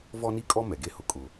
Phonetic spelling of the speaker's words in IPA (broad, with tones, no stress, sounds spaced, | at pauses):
v ɔ˦ n i˦ kʼ ɔ˦ m ɛ˨ ɡ e˦ h ʊ˨ kʼ ʊ˨